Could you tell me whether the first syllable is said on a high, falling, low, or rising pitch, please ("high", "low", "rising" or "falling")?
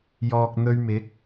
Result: low